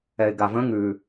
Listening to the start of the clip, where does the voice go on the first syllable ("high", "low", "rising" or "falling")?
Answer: low